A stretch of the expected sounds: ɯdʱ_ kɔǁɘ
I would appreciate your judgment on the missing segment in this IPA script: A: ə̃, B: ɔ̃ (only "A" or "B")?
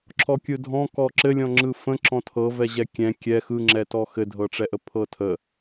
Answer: B